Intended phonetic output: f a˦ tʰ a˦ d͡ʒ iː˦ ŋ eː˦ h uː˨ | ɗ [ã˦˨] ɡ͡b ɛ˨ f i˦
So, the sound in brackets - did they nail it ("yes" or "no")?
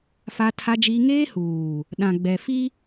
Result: no